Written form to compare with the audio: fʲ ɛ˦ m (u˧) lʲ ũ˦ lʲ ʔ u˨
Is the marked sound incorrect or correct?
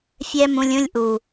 incorrect